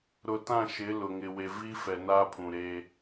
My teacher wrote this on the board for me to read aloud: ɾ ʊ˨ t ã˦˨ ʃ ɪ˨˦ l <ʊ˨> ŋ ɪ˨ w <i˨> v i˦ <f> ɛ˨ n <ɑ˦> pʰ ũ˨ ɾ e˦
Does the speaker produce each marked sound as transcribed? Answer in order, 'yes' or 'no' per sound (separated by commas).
yes, no, yes, no